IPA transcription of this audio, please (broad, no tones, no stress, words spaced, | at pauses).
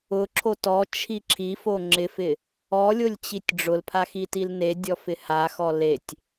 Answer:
ʊǁʰo tɔt͡ʃʰi ǁʰifo ŋ͡ǁɪfɪ | ɔlʲolʲt͡ɕitʲ ɖ͡ʐʊlpʰaxitil nedʲɔfɪ haxɔ letʲ